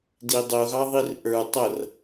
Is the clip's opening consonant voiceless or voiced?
voiced